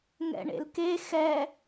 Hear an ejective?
no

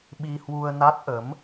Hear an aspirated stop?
no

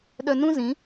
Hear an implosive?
yes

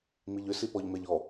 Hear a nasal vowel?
no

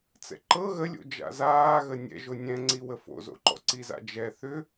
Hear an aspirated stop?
no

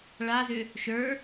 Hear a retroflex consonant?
yes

